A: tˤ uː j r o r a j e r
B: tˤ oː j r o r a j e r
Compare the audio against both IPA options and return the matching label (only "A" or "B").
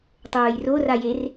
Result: B